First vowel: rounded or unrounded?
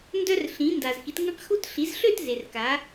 rounded